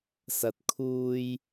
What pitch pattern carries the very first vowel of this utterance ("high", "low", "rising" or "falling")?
low